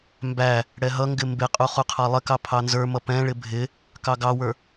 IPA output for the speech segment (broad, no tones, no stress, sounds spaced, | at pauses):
m b æ | ɽ ɛ ɦ ʌ ŋ ɡ ɪ m b ɪ qʼ u χ u qʰ ɑ lˠ ɪ k ɑ pʰ ɑ n z ə˞ m ʌ p ɛ̃ ɭ ɪ bʱ ɪ | k ɑ ɡ ɑ w ə˞